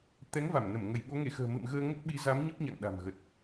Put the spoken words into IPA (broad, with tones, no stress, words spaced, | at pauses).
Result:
t̪ɛ˨˦ŋva˧˩mnə˧˩m ŋə˧˩jɓo˨˦ŋe˧˩xə̤ː˨˩ mɨ̰˧˨mɣəː˧ ŋə˦˥t̚ɓi˨˦za˨˦m ɲə˦˥p̚ɲa̰˧˨ŋ ɗa̤˨˩mɣə˨˩t̚